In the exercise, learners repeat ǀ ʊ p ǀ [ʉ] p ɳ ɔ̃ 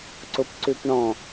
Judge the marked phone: correct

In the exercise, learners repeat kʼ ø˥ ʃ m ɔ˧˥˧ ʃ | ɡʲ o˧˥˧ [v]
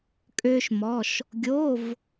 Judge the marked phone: correct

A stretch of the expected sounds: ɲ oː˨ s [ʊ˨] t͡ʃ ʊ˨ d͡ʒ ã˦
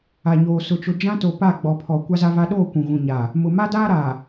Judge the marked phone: correct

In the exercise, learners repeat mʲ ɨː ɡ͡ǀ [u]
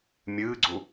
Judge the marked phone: correct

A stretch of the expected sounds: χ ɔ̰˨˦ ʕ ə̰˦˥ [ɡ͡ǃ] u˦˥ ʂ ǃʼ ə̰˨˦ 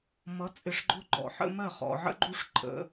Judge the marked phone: correct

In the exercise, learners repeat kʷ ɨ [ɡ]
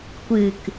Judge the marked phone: incorrect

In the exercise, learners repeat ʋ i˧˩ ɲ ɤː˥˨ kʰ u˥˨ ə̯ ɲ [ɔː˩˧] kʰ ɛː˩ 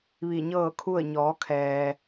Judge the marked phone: correct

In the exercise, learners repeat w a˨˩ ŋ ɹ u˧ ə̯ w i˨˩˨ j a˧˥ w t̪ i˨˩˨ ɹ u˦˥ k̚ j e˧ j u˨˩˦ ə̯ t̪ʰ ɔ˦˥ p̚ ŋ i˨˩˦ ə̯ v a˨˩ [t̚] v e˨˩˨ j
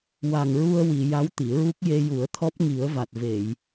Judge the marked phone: correct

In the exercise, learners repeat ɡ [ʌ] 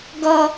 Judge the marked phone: correct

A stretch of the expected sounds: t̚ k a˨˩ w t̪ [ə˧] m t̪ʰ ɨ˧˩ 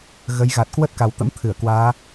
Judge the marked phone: incorrect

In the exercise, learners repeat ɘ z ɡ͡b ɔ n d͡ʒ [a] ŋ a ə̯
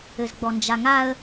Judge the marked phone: correct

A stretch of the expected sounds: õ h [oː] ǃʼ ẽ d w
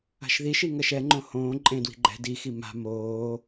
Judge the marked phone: incorrect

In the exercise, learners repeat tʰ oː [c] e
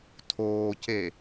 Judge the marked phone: correct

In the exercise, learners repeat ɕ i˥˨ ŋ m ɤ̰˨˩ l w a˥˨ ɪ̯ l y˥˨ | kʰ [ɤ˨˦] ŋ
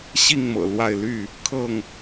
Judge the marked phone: incorrect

